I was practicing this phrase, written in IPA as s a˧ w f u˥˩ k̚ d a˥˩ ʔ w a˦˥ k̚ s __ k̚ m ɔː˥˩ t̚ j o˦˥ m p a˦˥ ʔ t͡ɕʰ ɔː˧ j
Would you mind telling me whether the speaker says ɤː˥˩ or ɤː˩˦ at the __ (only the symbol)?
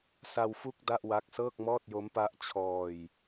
ɤː˥˩